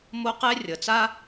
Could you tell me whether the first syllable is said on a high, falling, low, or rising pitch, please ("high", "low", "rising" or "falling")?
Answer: high